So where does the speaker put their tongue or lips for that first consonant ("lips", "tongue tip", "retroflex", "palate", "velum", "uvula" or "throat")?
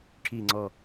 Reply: retroflex